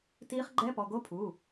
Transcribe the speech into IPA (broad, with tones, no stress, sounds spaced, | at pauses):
t iː˧˥ χ ɡ͡ǃ ɛ˧˥˧ p ɔ˩˧˩ ɡ o˧˥ pʰ uː˩˧˩